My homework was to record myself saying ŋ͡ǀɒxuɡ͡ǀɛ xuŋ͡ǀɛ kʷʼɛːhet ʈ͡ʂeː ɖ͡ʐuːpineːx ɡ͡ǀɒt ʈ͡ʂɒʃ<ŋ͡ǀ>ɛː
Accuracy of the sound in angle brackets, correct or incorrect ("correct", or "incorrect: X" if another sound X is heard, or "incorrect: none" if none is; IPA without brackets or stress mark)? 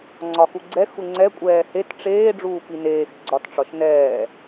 incorrect: n